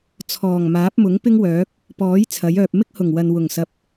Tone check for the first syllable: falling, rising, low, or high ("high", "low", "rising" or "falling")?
low